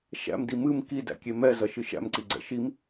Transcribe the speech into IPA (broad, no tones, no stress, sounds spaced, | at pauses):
ʃ æ̰ m d i m ɨ m k i d æ̰ kʲ e m ɛ z ɐ ʃ ɨ ʃ æ̰ m ǀ i ɡ͡ǀ ɛ̰ ʃ i m